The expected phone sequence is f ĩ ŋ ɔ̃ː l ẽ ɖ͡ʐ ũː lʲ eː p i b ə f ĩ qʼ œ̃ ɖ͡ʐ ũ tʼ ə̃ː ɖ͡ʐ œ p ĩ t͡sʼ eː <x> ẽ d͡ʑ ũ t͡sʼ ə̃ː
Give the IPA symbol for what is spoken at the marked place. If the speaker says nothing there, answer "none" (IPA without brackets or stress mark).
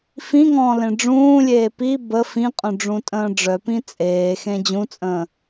x